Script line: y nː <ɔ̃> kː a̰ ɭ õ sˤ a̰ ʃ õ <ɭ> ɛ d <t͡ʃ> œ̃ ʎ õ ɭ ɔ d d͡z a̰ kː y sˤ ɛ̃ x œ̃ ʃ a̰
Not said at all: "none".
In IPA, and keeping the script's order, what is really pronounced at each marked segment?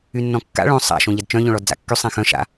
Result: ɔ̃, ʎ, t͡ʃ

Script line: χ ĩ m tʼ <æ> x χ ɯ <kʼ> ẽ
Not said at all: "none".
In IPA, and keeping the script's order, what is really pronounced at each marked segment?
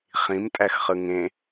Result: æ, ŋ

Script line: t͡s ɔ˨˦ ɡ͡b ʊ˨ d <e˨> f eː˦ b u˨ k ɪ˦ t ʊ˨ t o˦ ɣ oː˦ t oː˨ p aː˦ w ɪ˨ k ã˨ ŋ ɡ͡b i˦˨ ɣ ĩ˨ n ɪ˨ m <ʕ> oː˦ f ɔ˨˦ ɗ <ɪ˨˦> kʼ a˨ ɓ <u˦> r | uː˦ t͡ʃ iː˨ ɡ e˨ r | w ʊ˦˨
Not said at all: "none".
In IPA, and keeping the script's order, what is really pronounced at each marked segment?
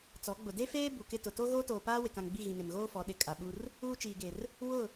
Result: e˦, ɣ, ɪ˨, u˦

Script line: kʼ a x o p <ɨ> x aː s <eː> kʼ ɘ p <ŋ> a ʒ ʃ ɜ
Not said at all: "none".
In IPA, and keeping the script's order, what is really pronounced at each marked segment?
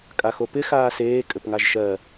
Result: ɪ, eː, ŋ

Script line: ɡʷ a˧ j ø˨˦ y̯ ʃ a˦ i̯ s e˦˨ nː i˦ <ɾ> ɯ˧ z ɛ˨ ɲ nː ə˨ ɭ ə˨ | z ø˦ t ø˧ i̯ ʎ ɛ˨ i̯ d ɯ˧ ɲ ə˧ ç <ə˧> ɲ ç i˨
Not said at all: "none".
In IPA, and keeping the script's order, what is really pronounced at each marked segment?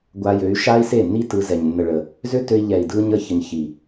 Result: t, ə˧

